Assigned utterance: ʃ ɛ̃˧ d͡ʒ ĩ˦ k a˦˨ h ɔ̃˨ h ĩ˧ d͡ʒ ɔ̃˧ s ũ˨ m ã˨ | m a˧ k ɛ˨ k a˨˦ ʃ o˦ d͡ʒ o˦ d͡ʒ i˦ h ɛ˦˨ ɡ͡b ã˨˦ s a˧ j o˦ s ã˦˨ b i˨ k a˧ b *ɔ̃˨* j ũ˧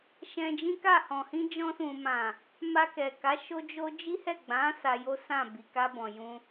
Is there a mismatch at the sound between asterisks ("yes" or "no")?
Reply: no